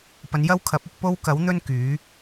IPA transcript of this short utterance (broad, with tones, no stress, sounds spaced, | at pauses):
p ɐ˨˧ n j ɐ˥ w kʰ ɐ˨˥ p̚ ʊ˧ k̚ p o˥ w k ɐ˨˥ w n̪ ɵ˥ n k yː˨˥